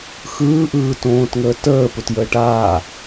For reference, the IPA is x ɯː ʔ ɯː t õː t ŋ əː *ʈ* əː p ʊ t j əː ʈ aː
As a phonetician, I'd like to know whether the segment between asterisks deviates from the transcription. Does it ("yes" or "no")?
yes